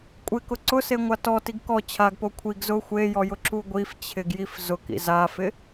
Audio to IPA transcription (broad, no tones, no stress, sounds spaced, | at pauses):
kʷʼ ɪ k ʊ ǀ ʊ s e ŋʷ a t ɔ t i ɡ k ɔ t͡ɕʰ a ɡ p o kʷʰ i ɡ z ʊ xʷ e j ɔ j ʊ ǁ u ɡʷ i f t͡ɕʰ ɪ ɡ j i f z ʊ k ḭ z a f ɪ